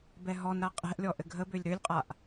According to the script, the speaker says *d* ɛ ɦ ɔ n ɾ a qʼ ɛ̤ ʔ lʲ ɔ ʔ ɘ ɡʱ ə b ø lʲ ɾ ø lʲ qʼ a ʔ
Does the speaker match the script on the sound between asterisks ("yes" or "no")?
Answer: no